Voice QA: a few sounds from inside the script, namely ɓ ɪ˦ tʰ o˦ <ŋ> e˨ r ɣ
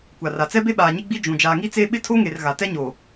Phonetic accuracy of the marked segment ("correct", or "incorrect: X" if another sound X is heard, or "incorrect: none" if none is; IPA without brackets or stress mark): correct